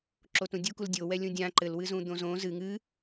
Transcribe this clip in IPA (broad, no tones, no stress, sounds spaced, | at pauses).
ǁ o t ũ dʲ u k u l dʲ o w ɛ lʲ ũ dʲ ã ǃ ɘ l w ɨ z ũ d̪ õ z õ z ɨ ŋ ɨ